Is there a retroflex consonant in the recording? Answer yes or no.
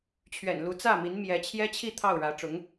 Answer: yes